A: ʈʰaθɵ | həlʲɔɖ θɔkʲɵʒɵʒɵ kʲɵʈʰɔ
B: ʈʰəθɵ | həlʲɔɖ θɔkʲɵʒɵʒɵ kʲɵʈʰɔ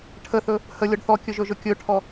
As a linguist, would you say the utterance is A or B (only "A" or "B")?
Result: B